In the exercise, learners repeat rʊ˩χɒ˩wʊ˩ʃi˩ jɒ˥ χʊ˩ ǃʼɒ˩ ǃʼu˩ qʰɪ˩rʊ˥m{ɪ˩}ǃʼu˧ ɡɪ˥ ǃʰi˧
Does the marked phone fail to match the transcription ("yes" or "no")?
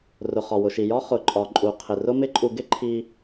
yes